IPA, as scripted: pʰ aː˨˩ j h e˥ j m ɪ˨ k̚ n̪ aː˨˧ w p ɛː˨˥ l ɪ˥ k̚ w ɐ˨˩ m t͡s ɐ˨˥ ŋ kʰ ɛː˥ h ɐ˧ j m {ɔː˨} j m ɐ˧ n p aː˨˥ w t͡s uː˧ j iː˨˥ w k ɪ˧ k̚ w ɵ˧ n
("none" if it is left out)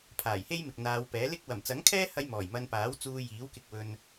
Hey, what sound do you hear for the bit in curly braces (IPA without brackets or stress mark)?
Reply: ɔː˨˩